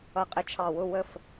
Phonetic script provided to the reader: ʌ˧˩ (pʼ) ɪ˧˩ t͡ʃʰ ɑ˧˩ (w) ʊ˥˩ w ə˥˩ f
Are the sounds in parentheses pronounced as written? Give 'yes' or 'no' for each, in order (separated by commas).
no, yes